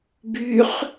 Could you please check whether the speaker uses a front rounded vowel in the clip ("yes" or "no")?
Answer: yes